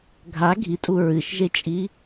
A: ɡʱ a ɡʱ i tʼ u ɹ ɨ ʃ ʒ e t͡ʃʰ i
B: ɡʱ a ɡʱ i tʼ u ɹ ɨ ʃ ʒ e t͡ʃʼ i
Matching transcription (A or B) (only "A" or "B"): B